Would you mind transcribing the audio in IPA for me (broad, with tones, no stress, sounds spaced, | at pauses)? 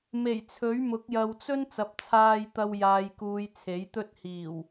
m e˨˩ j t͡sʰ ɵ˨˥ ɥ m ʊ˨˥ k̚ j ɐ˨ w t͡s ɵ˥ n t͡s ɐ˨ p̚ t͡sʰ aː˧ j t̪ ɐ˧ w j aː˨ j k uː˨ j t͡sʰ e˨˥ j t̪ ɵ˥ t̚ h iː˨˩ w